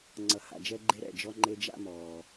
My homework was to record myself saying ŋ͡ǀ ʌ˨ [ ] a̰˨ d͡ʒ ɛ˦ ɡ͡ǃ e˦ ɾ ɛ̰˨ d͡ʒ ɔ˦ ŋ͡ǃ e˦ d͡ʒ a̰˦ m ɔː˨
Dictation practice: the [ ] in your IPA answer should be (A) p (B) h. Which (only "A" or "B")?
B